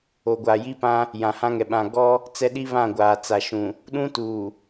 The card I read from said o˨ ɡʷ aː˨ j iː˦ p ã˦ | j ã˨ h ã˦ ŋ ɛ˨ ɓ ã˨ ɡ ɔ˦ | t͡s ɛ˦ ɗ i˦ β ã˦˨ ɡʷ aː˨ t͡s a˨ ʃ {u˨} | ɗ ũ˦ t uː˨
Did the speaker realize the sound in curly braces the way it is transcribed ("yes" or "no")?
no